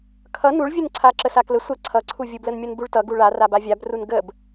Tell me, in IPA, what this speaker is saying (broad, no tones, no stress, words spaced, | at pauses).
kʰʌ nuɭvʲunǀʰa ǁəsaklə sʷə ǀʰʌǀʰuvʲu blənmʲʌnbuɭtʌ ɡuɭa rabavʲabrun ɡəb